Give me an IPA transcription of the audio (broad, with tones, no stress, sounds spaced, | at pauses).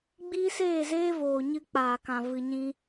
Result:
ɡ͡b iː˦ s eː˦˨ z eː˦ v oː˨ ɲ ɨ˧ k͡p aː˨ k ã˨ v ɨ˨ ɲ ĩ˧